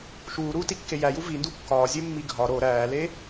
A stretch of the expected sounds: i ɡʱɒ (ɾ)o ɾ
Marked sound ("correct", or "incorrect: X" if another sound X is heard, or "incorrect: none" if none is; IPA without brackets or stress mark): correct